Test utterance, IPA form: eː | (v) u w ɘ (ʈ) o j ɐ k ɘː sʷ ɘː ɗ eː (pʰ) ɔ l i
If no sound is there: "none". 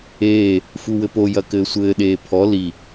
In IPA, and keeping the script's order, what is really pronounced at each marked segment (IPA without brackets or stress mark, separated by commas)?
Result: f, p, pʰ